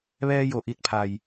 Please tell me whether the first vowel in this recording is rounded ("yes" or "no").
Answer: no